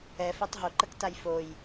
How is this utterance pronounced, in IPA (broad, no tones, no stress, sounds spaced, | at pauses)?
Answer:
ɛ f æ tˤ ɦ o ǃ ə k t a j f o j